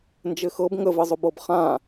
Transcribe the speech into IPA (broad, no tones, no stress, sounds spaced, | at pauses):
n d͡ʒ ɘ x ɤ b ŋ ə v ɘ zˤ ʊ b ɤ b χ ã